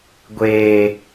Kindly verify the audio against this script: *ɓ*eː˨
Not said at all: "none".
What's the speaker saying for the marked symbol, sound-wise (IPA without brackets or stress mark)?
ɡʷ